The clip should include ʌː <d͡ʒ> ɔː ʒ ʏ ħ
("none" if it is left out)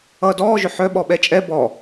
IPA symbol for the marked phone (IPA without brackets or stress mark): d